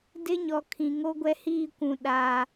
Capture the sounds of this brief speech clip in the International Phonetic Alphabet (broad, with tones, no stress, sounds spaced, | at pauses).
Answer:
d ɪ˦ ɲ ɔ˨ kʰ ĩ˨ ŋ o˦ ɡʷ ɛ˦ h iː˦˨ kʷ ũ˨ ɗ aː˨